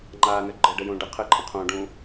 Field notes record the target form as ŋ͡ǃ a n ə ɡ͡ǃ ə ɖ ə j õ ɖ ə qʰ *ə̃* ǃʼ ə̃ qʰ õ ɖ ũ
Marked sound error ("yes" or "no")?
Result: yes